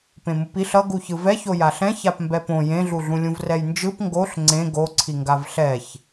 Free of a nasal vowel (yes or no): no